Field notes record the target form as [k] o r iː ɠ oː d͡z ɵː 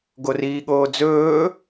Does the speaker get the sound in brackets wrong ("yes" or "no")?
yes